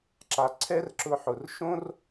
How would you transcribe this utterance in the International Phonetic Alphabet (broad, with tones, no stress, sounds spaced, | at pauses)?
ǁ a˩ ǀʰ ɛ˥ r ǁ ʊ˧ ħ ʊ˩ r ʃ õ˥ r